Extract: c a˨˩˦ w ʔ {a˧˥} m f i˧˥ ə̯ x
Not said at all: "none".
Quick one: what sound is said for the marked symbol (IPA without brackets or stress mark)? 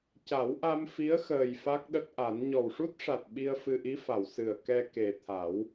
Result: a˧